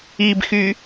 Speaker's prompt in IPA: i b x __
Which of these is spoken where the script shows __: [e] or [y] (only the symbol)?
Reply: y